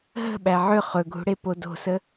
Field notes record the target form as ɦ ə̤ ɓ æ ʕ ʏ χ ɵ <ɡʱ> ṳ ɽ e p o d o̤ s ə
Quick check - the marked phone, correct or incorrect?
correct